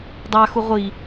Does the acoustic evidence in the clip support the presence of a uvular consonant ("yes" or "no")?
yes